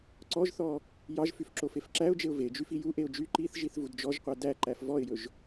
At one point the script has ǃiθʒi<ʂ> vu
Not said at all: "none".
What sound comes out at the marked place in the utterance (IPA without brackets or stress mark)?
θ